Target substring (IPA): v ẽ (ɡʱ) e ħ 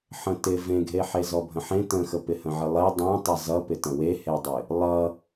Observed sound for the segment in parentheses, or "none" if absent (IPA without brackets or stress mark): ɡʱ